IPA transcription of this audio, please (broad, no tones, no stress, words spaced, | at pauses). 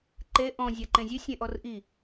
ǃe ʔɔ̃ zʲaǃẽzʲʉ sʲẽʔɔrʔi